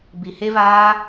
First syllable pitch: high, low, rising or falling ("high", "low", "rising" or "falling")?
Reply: low